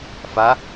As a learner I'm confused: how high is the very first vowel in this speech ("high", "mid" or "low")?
low